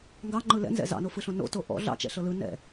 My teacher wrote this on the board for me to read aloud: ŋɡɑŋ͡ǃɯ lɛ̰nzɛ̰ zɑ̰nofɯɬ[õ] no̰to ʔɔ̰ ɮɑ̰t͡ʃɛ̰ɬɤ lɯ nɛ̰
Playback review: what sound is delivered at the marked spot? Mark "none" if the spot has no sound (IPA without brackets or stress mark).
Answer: õ